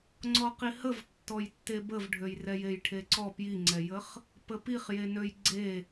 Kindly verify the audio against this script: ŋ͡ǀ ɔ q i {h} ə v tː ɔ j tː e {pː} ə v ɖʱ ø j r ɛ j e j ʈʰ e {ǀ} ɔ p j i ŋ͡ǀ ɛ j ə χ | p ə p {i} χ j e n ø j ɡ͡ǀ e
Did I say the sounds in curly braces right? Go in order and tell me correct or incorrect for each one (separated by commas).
correct, incorrect, correct, correct